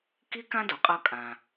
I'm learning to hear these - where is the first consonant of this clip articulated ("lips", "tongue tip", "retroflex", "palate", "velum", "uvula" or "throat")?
velum